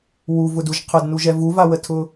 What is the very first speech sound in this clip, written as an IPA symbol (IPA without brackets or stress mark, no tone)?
w